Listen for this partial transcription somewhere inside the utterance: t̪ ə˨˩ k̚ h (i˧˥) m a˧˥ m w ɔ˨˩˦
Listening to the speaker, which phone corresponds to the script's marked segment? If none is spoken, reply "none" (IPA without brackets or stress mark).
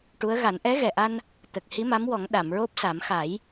i˧˥